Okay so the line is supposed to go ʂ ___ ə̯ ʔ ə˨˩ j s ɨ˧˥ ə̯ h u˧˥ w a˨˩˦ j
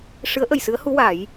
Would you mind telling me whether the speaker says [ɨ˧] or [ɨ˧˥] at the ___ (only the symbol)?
ɨ˧˥